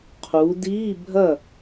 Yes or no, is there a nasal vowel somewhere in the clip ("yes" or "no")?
no